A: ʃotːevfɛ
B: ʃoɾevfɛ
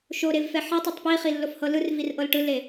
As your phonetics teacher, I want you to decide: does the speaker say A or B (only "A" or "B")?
B